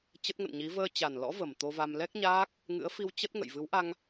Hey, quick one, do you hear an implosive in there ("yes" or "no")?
no